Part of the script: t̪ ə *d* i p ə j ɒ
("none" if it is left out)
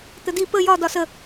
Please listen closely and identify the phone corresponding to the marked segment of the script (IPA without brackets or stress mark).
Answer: d